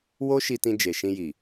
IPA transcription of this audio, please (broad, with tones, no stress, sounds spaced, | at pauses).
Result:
w o˦ ʃ i˧ t ĩ˧ d͡ʒ e˨ ʃ ĩ˧ j i˨